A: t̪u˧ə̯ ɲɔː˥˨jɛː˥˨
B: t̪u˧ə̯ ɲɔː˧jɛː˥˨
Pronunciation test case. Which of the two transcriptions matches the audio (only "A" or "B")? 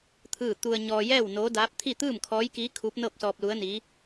B